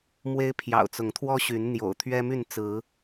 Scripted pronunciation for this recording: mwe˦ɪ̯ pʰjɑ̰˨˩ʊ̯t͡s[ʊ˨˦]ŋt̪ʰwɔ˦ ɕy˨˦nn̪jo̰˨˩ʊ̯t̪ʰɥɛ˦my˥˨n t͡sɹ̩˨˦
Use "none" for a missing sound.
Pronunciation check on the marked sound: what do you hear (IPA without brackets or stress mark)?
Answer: ʊ˨˦